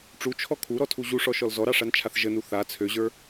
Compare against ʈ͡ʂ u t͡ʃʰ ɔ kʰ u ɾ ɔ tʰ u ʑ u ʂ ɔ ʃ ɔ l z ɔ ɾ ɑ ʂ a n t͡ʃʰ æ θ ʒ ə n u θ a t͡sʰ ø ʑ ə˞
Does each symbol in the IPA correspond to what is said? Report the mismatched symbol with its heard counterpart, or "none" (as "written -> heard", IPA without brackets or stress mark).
æ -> a